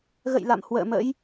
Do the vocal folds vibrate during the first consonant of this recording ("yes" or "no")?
yes